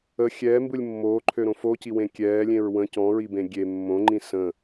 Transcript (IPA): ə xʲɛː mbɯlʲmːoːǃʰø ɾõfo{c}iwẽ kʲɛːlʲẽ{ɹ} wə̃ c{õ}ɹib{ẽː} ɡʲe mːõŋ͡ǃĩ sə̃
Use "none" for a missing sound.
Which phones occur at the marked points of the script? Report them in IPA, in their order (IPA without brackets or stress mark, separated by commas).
c, ɹ, ɔ̃, ẽ